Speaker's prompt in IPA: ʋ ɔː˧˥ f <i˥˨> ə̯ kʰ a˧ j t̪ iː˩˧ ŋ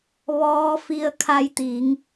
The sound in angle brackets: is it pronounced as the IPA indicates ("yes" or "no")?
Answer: no